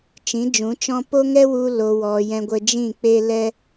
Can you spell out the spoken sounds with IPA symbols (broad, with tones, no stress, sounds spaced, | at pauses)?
t͡ʃ ĩ˨˦ d͡ʒ ũ˨˦ t͡ʃ ɔ̃˦ p o˦ ŋ ɛ˦ w u˧ l o˨ w ɔ˨ j ɛ̃˧ ɡʷ ə˧ d͡ʒ ĩ˦˨ k͡p e˦ l ɛ˦